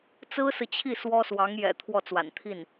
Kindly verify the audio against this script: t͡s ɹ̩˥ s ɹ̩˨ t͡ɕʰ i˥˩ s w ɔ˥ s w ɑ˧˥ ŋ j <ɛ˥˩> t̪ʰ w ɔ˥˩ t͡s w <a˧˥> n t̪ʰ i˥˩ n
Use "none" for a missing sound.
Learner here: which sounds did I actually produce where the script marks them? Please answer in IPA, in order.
ɛ̰˨˩, a̰˨˩

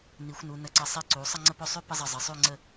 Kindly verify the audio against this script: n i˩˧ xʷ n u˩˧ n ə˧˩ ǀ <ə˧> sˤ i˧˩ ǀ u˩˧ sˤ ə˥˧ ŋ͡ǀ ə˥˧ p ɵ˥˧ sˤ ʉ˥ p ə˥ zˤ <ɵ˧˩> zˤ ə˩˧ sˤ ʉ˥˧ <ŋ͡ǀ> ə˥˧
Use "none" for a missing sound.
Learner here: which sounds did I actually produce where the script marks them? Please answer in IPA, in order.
ə˧˩, ə˧˩, ŋ͡ǀ

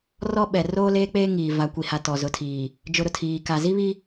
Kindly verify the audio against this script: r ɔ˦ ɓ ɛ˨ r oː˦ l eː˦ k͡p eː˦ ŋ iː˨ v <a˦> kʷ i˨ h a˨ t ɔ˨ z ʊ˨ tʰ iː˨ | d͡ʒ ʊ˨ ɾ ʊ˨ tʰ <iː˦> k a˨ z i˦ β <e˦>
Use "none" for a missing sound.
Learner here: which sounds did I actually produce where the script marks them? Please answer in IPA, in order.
a˨˦, iː˨, i˦

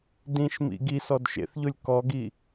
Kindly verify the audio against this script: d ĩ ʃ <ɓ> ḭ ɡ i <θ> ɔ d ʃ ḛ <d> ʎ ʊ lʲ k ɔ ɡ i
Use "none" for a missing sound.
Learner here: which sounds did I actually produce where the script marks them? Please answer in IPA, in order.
m, s, θ

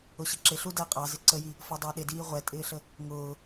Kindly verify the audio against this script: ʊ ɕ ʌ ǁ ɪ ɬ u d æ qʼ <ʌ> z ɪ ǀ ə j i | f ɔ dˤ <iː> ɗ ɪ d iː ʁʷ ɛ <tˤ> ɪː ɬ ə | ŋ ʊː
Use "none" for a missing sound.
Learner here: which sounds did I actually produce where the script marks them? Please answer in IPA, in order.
ɑ, ɪː, tʼ

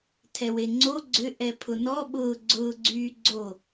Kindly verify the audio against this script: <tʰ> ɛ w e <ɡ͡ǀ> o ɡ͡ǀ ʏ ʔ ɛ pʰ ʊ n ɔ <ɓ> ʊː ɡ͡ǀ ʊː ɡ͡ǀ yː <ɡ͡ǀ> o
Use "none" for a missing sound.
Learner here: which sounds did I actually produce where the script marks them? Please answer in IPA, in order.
tʰ, ŋ͡ǀ, ɓ, ɡ͡ǀ

